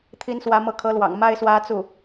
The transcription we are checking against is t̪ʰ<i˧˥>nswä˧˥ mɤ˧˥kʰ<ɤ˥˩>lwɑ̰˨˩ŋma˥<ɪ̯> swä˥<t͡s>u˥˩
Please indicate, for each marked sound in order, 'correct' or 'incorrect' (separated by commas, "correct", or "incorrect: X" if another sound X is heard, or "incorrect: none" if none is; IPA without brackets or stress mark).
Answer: correct, incorrect: ɤ˧˥, correct, correct